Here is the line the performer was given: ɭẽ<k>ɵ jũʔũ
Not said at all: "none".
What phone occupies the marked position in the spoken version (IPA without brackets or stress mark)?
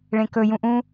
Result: k